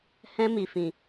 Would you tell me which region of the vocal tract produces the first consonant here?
throat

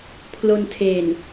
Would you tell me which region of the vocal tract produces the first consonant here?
lips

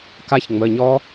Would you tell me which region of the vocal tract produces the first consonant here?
velum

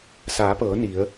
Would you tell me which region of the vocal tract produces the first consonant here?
tongue tip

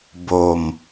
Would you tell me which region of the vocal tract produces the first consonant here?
lips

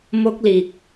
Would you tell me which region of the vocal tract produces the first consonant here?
lips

